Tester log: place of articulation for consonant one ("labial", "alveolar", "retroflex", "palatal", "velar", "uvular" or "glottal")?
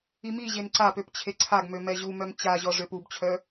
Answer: labial